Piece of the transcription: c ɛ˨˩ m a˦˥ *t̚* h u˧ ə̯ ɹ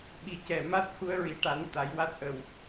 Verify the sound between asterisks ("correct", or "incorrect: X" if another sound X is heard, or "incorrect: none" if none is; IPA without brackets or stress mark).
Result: correct